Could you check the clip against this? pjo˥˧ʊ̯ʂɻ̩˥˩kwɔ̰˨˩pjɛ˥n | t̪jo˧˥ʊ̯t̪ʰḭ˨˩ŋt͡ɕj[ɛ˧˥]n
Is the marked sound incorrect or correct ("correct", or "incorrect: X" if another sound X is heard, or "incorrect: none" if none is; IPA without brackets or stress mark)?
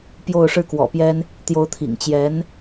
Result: correct